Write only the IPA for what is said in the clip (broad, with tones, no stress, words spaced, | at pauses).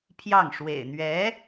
pʰjɑ˥˩ŋ ʂwḛ˨˩ɪ̯ n̪ɥɛ˧˥